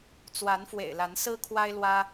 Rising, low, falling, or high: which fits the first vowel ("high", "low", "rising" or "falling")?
rising